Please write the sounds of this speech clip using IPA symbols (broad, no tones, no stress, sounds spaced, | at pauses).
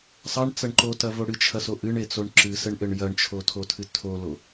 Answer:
sˤ ɐ ɳ t͡s ɐ ɳ ǃ o t ɐ v o ɽ ɨ t͡ʃʰ ɐ s o ʔ ɨ ɳ e t͡s o ɳ ǁ ɨ s ɘ ɳ ʔ ɘ ɳ j ɐ ɳ t͡ʃʰ o tʰ o tʰ ɨ tʰ o l o